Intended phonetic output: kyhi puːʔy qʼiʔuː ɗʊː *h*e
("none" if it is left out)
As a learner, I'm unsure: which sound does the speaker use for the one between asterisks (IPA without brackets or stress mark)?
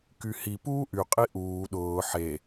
ħ